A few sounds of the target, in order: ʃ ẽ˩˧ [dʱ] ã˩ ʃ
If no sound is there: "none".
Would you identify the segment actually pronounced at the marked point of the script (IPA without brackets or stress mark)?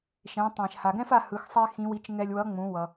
tˤ